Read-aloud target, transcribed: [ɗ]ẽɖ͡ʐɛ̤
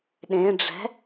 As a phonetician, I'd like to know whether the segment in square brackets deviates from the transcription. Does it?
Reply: no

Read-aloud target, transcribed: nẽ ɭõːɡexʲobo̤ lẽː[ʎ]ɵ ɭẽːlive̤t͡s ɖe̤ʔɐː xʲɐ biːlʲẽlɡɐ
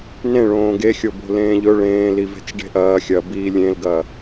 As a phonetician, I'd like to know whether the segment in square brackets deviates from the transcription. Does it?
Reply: no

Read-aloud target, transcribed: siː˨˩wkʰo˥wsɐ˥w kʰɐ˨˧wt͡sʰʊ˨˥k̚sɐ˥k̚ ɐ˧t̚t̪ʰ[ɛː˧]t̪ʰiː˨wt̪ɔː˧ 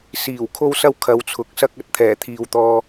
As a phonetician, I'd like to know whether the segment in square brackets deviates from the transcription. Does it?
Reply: yes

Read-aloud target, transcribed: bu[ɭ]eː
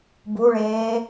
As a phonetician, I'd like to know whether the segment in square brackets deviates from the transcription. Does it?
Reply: no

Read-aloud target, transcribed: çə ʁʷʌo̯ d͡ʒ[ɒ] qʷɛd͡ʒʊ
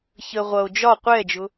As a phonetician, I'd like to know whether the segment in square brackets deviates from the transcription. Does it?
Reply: no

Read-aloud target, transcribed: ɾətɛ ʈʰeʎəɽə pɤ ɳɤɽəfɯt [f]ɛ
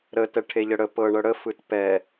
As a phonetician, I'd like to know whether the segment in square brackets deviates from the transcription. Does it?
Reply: yes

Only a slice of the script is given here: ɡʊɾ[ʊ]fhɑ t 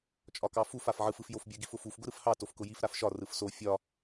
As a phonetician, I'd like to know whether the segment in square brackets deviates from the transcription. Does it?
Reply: yes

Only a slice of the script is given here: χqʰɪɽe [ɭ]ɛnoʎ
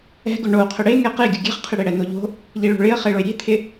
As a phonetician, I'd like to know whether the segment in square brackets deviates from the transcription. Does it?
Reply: yes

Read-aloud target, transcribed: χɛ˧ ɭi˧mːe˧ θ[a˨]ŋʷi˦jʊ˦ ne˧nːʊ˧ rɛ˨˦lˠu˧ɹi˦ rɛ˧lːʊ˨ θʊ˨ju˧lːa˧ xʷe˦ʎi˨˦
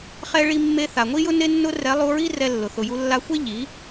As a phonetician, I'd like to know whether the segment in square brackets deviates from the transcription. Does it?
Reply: no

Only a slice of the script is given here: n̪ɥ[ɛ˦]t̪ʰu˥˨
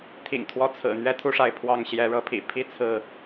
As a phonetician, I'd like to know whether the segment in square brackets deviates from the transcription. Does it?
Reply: no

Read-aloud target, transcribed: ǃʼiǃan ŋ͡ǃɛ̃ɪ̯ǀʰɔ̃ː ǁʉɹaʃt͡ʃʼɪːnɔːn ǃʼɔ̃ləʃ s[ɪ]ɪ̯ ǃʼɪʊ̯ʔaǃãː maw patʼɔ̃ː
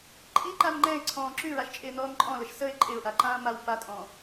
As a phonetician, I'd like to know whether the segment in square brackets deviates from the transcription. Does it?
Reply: yes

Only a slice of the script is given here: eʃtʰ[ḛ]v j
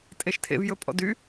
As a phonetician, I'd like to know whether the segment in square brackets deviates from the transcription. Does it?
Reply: no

